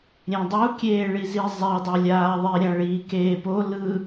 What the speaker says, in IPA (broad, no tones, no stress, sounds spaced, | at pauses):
ɾʲ ẽ dˤ u kʲ eː ɭ i z i zˤ ɛ dˤ ɛ lʲ aː ðˤ i ɾʲ ã ɭ iː k eː p o l ɯ